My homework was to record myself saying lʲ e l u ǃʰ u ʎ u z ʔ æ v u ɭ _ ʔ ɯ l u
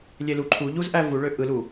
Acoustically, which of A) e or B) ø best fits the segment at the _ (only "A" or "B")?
B